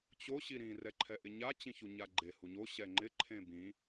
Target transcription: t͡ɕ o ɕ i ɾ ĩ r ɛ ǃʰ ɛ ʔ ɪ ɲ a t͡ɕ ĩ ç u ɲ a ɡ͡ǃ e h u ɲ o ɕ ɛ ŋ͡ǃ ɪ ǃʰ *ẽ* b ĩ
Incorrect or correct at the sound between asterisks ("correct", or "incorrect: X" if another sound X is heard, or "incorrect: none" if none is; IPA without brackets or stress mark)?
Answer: correct